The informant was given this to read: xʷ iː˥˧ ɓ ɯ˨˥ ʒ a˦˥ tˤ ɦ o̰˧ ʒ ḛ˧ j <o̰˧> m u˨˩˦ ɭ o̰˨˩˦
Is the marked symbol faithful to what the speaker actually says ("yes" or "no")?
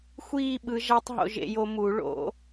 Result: no